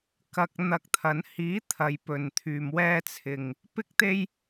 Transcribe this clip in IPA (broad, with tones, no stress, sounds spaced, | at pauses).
k ɐ˨ k̚ n̪ ɐ˧ k̚ t̪ʰ ɐ˨˧ n h iː˨˥ t̪ʰ ɐ˨˧ j p ɵ˨ n t̪ʰ yː˨ m w ɛː˧ t͡sʰ ɪ˨ ŋ | p ɪ˥ k̚ t̪ e˥ j